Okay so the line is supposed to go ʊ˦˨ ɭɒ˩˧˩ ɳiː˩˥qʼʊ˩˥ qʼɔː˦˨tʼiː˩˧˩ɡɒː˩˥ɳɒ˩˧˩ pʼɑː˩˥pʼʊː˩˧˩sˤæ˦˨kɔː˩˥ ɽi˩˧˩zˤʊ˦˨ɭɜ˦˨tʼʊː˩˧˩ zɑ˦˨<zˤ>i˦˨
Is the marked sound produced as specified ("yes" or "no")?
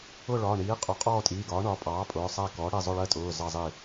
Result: yes